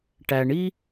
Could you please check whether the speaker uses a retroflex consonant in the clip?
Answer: yes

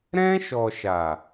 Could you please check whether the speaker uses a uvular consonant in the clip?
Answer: no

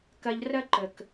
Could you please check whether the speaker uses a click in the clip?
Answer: yes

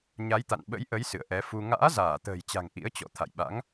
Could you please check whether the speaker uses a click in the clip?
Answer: no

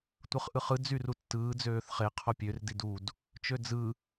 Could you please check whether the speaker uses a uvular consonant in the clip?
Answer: yes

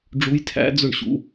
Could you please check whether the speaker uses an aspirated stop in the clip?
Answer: yes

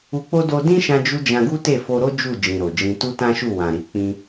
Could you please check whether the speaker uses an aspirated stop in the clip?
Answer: no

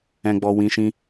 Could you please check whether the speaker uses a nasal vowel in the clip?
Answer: yes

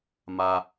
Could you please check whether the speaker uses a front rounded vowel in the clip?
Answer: no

